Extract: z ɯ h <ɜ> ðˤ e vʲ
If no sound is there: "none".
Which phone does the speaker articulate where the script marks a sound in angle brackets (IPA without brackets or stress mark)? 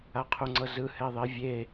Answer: ɛ